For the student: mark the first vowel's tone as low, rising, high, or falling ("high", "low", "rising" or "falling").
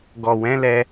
low